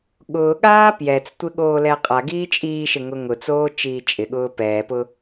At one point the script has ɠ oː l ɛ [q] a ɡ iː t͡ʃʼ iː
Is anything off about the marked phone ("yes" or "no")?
yes